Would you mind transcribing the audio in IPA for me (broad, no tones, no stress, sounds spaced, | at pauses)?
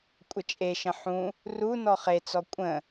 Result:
kʷʼ ə t͡ʃʼ e ʃ ə̃ ħ ũ | r u n ɔ χ e t͡s ɔ kʷʼ ə̃